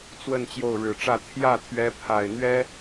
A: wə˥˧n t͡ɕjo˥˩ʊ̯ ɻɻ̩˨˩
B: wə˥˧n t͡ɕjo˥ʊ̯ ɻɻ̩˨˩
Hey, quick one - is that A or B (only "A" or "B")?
A